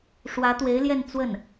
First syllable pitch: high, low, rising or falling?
rising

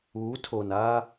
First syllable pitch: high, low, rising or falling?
rising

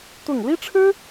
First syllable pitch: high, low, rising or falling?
falling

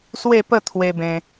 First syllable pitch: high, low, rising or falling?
falling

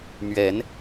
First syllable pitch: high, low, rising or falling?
rising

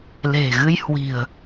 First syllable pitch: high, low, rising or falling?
low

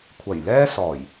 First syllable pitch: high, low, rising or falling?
low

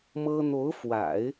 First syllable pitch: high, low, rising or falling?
high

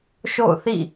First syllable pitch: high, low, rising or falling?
falling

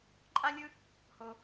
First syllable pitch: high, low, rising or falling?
high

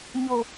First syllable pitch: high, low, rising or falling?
low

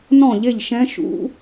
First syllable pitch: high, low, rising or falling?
falling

